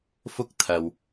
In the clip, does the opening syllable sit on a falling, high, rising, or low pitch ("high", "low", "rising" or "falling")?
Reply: high